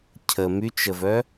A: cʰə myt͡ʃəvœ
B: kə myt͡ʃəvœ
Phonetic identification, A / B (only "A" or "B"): A